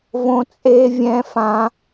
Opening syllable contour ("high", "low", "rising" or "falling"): high